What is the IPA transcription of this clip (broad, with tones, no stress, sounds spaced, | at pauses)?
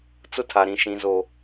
t͡s ʊ˦ tʰ a˨ ɾ ĩ˨ ʃ ĩ˨ z o˨